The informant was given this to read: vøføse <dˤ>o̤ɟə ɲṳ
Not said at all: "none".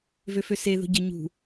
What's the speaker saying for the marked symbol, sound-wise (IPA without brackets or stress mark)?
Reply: ð